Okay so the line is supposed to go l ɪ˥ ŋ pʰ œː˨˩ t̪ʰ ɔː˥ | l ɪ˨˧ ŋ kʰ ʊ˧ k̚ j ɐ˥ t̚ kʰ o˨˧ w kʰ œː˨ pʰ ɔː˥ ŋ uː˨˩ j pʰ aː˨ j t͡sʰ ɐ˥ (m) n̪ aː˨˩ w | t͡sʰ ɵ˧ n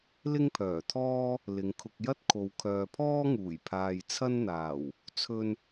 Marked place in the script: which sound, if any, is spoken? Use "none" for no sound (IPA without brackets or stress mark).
n